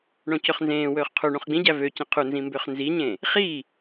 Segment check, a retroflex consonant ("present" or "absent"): present